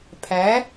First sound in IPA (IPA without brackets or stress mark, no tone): pʰ